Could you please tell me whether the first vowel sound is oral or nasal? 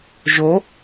oral